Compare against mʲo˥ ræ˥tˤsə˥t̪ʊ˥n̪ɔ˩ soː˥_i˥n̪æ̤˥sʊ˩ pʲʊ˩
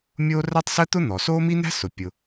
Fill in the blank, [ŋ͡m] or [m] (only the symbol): m